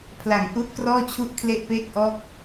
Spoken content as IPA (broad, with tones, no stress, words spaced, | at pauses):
pʰla˨˩ŋʔu˦˥ʔkrɔː˥˩t͡ɕʰu˥˩ʔ kʰle˥˩ʔpeː˥˩k̚ʔɔː˥˩k̚